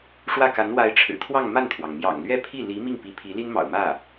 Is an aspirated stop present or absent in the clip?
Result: present